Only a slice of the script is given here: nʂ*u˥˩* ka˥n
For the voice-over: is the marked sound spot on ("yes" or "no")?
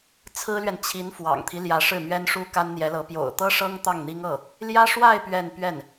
no